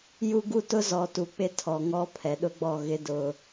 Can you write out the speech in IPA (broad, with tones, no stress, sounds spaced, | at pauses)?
j u˦ ɡ u˦ t ʊ˦ z ɔ˨ t u˨ k͡p ɪ˦ tʰ ɔ˨ ŋ ɔ˦ pʰ ɛ˨ ɗ ʊ˦ ɡ͡b ɔ˦˨ ɣ ɪ˦ d ʊ˦